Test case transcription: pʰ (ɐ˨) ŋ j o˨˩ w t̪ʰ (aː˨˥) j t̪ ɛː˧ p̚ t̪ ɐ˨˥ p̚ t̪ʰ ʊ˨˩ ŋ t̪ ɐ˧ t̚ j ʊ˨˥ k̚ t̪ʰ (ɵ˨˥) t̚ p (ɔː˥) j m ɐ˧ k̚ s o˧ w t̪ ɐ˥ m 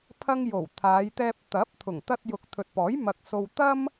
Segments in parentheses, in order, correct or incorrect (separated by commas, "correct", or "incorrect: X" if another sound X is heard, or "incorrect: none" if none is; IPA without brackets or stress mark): incorrect: ɐ˥, incorrect: aː˨˧, incorrect: ɵ˨, incorrect: ɔː˨˥